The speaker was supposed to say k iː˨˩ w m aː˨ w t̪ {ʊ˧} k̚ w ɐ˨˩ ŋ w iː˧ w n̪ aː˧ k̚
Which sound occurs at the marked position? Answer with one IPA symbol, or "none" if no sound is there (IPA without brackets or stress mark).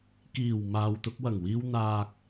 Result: ʊ˧